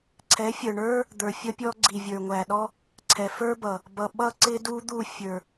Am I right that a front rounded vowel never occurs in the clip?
yes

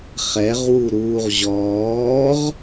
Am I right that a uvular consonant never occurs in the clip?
no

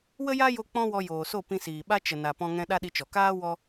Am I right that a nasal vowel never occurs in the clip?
no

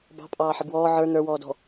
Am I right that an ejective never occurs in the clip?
no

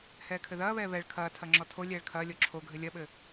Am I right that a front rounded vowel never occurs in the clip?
yes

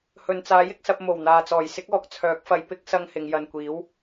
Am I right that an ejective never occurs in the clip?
yes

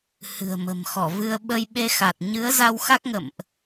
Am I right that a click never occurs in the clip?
yes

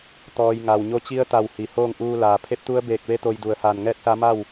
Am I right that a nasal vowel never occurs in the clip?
yes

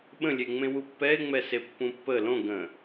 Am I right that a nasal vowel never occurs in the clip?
no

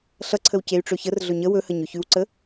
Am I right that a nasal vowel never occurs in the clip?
yes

